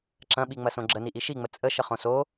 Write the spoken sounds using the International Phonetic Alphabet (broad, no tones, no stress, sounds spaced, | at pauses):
ǁ ɐ̃ ɓ i ŋ͡m ɐ s õ ɡ͡ǁ ə n i ʔ i ʃ i ŋ͡m ə t͡sʼ ə ʃ ə χ õ s o